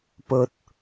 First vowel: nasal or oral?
oral